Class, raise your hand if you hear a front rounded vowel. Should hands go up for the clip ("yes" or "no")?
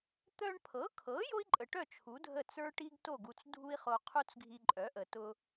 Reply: yes